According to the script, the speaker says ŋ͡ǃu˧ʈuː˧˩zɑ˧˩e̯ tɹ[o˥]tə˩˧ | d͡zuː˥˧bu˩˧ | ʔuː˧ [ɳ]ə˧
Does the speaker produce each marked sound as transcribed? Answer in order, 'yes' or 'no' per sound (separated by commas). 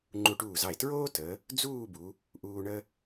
no, yes